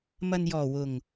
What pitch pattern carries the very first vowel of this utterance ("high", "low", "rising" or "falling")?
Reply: low